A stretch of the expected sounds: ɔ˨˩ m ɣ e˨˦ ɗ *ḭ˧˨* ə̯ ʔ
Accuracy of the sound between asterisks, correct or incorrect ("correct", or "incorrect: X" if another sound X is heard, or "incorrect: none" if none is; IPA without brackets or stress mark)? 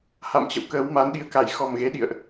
correct